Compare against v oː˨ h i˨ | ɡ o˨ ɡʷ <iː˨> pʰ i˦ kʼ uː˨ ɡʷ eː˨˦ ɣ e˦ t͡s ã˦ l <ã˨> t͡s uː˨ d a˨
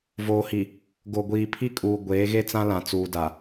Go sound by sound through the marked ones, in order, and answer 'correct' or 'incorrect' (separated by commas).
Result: correct, correct